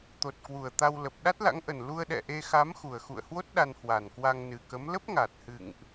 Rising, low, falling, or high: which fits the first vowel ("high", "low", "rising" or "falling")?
low